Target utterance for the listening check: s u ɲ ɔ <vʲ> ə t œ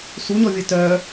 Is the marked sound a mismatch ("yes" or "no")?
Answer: no